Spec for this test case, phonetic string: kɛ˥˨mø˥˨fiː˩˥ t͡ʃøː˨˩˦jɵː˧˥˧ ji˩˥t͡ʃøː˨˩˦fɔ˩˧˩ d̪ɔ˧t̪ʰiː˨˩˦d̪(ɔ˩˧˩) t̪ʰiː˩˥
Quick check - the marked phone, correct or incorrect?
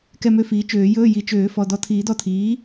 incorrect